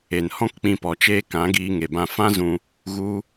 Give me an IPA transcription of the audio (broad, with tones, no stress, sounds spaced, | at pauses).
e˨ n h ɔ̃˦ k k͡p ĩ˧ p ɔ˨ t͡ʃ eː˦ k ã˨˦ ɡ iː˧ ŋ e˨ b ã˦ f ã˦ z ũ˦ | ɣ u˧